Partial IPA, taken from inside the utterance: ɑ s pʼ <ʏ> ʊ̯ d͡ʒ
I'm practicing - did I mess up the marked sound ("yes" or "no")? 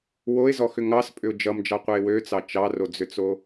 no